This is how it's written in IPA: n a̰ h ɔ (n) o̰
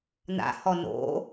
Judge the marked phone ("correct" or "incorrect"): correct